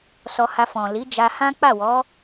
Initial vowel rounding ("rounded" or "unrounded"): rounded